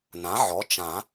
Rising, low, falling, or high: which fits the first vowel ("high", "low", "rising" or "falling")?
rising